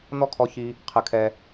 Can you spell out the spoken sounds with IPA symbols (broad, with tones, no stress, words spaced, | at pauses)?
n̪ɔ˦kʰɔ˧ çi˦ | qʰɨ˧ kʰɛ˧